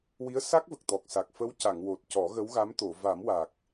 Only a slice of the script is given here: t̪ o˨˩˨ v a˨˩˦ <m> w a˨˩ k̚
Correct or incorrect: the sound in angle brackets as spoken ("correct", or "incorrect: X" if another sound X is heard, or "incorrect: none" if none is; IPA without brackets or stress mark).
correct